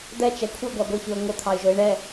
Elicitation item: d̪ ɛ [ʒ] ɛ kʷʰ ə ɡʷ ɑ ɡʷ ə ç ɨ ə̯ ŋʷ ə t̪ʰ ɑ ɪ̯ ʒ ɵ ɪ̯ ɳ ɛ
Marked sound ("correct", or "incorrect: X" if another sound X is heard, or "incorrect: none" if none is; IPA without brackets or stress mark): incorrect: t͡ʃ